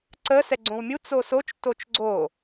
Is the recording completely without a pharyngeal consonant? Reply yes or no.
yes